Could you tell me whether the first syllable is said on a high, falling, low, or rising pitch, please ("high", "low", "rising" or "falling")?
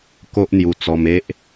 high